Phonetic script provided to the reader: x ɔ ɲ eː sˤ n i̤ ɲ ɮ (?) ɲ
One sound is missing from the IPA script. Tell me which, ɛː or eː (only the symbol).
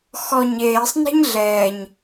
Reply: ɛː